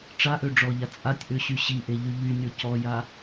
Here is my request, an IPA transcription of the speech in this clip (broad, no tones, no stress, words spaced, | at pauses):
ʈ͡ʂaʔø ɖ͡ʐɔʎa t͡sʼatʲʔøɕy ɕiʔeʎy ʎynʲɔ cɔja